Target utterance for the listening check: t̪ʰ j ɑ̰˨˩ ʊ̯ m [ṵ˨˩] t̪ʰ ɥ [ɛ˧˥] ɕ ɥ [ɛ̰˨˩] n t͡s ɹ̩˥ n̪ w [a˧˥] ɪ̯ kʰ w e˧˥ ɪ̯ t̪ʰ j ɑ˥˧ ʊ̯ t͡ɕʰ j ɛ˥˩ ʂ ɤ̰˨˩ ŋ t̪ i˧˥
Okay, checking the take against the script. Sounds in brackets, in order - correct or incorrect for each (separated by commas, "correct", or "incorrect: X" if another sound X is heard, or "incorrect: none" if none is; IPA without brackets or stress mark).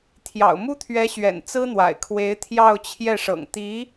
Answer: incorrect: u˥, correct, correct, incorrect: a̰˨˩